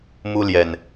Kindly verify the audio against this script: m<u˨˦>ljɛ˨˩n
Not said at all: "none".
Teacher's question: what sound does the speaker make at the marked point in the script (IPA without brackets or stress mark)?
u˦